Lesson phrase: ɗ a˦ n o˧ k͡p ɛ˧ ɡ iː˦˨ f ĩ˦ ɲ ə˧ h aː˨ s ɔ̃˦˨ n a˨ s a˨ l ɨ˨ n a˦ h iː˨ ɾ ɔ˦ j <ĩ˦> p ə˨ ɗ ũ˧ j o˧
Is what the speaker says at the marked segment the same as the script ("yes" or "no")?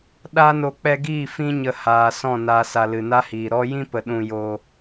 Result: yes